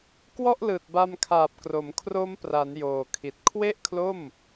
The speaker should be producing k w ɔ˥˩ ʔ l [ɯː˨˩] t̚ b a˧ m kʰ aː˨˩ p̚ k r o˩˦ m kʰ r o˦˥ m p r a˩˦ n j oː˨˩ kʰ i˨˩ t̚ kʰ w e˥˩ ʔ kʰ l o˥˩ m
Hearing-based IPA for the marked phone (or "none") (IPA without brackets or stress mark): ɯː˨˩